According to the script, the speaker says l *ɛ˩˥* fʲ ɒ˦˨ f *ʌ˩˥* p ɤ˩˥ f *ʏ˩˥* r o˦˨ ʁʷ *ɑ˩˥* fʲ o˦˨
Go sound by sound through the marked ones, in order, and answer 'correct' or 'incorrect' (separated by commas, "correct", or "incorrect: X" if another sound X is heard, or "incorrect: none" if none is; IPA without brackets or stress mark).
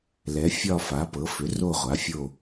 correct, incorrect: a˩˥, correct, incorrect: a˩˥